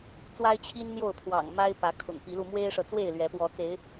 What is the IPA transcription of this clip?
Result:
t͡s w a˦ ɪ̯ t͡ɕʰ i˦ n n̪ j o˥˨ ʊ̯ pʰ w ɑ̰˨˩ ŋ m a˦ ɪ̯ p ä˨˦ kʰ ʊ̰˨˩ ŋ p i˨˦ l u˧ m w e˦ ɪ̯ ʂ ɤ˨ t͡s w e˥˨ ɪ̯ l ɥ ɛ˨˦ p w ɔ˨˦ t͡s e˨˦ ɪ̯

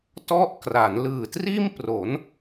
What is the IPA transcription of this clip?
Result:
t ɔ˦˥ ʔ k r a˩˦ n l ɯː˨˩ t r iː˥˩ m p r o˩˦ n

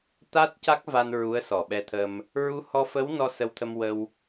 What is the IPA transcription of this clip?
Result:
t̪ a˦˥ t̚ c a˦˥ k̚ v a˧ n ɹ u˧˥ ə̯ s ɔ˨˩ ɓ ɛ˧ t̪ʰ ə˧ m | ɹ u˧˥ h ɔ˧ f ə˧˥ w n ɔ˧ s ə˧ w t̪ʰ ə˧ m w ə˧ w

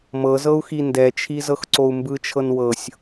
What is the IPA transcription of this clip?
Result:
m ɤ z ɤ u̯ x i n d ɛ t͡ʃʰ i z ɤ x ǀ o u̯ m b ɯ t͡ʃʰ ɤ n w ɤ sʲ

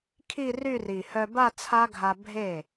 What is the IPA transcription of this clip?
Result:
kʰ i˥˧ r y˥˧ r i˨˩ h œ˧ b a˥˧ t͡sʰ a˦˥ ɡʱ a˧ bʱ e˥˩

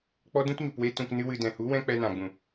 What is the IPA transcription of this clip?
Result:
k͡p ɔ˦ d ũ˦ t ɲ u˨ p w e˦ t ũ˧ k n ɨ˦ w ɨ˧ d ɛ̃˨ h u˨˦ w ɛ̃˦ k͡p ɛ˧ n ã˨ ɡ͡b ũ˨

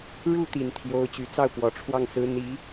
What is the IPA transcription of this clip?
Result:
ɻ u˥˩ t̪ i˨˩ n t̪ʰ j o˧˥ ʊ̯ t͡ɕ y˨˩ t͡s ɑ˥˩ ʊ̯ p w ɔ˨˩ ʈ͡ʂʰ w ɑ˥˩ ŋ s ɹ̩˧˥ n̪ i˧˥

